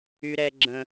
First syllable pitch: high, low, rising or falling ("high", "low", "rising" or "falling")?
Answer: high